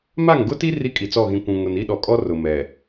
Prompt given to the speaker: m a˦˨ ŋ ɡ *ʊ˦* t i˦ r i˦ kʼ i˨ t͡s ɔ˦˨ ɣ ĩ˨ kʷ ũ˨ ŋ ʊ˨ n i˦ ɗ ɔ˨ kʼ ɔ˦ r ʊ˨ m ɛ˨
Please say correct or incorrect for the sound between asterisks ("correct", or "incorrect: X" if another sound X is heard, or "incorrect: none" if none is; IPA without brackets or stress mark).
correct